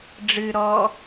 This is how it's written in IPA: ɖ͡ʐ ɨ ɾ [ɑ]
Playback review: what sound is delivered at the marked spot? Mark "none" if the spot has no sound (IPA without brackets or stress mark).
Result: ɔ